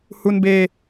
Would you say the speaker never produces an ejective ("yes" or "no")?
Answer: yes